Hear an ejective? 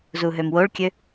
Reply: no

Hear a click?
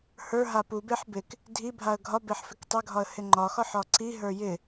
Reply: yes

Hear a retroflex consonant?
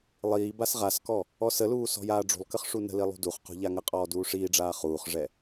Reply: yes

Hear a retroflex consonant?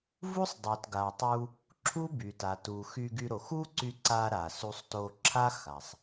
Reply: no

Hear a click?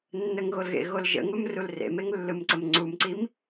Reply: yes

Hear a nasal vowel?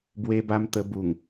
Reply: no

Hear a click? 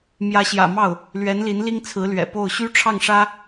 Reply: no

